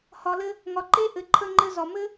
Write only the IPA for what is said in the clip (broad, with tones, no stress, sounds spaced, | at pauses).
h ɒ˧ l ɘ˦ | ŋ ɒ˨ ǃ e˦ ʔ ɘ˨ ǃʰ ə˧ ŋ͡ǃ ɘ˧ z ɒ˨ m ɘ˦